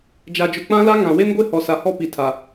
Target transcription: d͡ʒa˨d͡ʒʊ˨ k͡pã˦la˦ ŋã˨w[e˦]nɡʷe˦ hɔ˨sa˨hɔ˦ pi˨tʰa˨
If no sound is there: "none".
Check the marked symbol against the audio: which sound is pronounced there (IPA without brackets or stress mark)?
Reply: e˦